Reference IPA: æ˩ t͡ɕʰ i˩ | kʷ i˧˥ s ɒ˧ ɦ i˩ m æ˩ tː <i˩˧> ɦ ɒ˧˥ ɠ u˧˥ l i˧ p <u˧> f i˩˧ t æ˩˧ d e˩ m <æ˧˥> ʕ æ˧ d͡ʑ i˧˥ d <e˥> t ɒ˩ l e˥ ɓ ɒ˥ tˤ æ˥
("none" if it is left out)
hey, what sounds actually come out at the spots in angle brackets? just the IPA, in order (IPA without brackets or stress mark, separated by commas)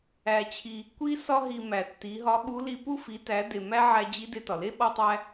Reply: i˩˧, u˧, æ˥, e˧